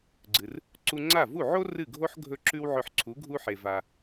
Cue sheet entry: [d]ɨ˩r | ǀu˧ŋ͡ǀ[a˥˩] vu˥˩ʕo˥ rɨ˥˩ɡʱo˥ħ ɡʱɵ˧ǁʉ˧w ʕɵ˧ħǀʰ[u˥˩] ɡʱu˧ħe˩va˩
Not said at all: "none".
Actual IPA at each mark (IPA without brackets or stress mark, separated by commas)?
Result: ɡ͡ǀ, a˥˩, u˩˥